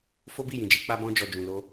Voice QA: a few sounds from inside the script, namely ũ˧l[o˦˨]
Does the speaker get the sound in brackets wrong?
yes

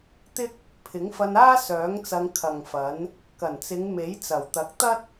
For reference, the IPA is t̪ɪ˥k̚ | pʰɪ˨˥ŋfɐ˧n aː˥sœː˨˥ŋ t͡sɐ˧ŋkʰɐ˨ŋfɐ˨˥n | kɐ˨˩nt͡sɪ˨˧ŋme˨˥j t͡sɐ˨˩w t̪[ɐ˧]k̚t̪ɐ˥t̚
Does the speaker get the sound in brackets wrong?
yes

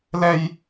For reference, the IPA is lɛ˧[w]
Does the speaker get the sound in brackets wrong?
yes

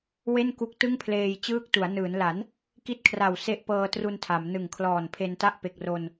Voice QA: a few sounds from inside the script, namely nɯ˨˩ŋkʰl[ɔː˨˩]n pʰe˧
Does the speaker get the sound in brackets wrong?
no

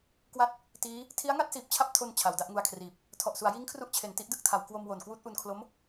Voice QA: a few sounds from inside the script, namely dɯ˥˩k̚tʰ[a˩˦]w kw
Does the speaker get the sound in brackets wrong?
no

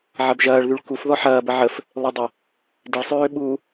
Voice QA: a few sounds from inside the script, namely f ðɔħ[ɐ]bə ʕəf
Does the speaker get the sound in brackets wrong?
yes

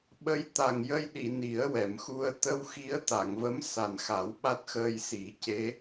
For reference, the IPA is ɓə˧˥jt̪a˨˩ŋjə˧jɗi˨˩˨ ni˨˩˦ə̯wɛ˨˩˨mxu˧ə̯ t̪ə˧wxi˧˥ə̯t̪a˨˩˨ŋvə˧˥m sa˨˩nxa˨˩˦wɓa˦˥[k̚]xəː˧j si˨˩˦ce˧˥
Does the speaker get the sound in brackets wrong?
yes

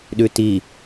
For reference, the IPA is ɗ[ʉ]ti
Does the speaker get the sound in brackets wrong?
no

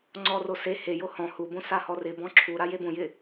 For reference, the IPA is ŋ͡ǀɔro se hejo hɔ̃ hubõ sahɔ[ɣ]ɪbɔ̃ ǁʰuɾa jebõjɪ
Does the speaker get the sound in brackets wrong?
yes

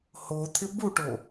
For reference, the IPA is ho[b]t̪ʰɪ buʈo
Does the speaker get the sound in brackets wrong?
yes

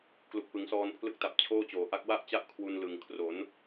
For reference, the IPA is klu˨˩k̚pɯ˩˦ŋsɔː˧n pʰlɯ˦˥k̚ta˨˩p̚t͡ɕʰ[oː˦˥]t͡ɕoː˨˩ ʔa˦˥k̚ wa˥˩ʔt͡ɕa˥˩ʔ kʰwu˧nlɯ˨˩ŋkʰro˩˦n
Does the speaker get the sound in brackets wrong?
yes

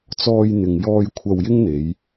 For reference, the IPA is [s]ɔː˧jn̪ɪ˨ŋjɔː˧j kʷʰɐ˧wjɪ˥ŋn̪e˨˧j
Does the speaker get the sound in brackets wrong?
yes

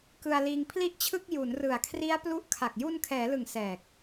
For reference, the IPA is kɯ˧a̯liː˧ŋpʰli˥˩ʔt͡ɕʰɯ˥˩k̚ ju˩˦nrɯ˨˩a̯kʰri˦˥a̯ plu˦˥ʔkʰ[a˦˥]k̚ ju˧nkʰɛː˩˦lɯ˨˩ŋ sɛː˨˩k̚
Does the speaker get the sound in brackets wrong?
yes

